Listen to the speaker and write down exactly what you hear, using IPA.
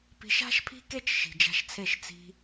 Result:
p i̤˧ ʃ a̤˦ ʃ pʰ i̤˦ k e˦ t͡ʃ ʃ i̤˨ d͡ʒ a̤˧ ʃ t͡sʰ e˦˨ ʃ t͡s i̤˧

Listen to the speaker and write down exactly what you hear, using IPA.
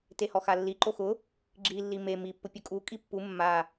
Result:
t e h ɔ x a lː i ǃ o x ʊ | ɡ͡ǁ i lː i m e m i pː ʊ pʲ ʊ kʼ u kʼ i pː u mː a

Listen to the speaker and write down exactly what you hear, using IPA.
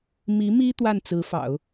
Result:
m i˧˥ m i˥ t̪ w a˥˩ n t͡s ɹ̩˧˥ f ɑ̰˨˩˦ ʊ̯

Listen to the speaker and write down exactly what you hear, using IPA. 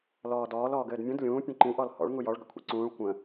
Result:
l ɔː d ɔː l ɔː ɡ ɘː d mʲ ũ d lʲ ũː pʲ ũ ǃ ĩ ʔ ɔ l h ɔ̰ ɭ ŋ u j ɔ ɭ ɡ ə̰ kʷʰ ḭ ǀ ũː ɭ kʷ ə̃

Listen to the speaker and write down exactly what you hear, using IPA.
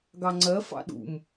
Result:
ɡ ɑ ŋ͡ǀ ɜ f ɑ̰ ɗ ṵ m

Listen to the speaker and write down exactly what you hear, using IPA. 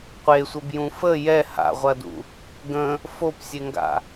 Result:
qʷ e sʷ ə b j ũ f ə j ɛ h a̰ ʁʷ ɐ d ṵ | ɡ ə̃ | f o p sʲ e ŋ ɡ a̰

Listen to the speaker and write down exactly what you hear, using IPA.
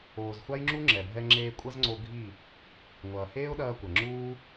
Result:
oː˨ z xʷ a˦ j ŋ͡ǁ u˦ ŋ͡ǁ ɛ˨ bʱ ɛ˧ ŋ͡ǁ eː˧ kʷʼ ɐ˦ z ŋ͡ǀ o˧ ɡʱ i˦˨ | ŋʷ ɐː˨ h eː˦ ʊ̯ ɗ ɐː˧ kʷ ɐ˨ ŋ͡ǁ uː˦

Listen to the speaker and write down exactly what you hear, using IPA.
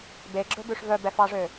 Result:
b e ɡ͡ǁ ɵ b ʉ ʂ v œ b ɛ f ɑ ʐ ø

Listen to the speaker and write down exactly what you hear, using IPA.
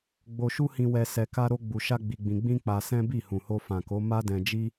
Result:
ɡ͡b o˧ ʃ u˦ h ĩ˧ w ɛ˧ s ɛ˧ k a˦ ɾ o˦ ɡ͡b u˧ ʃ a˦ ɡ͡b i˧ ɡ͡b ĩ˧ ɡ͡b ĩ˦ k͡p a˧ s ɛ̃˦ b i˦˨ h ũ˨ h o˧ f ã˨ k o˨˦ m a˦ d ɛ̃˧ d͡ʒ i˦

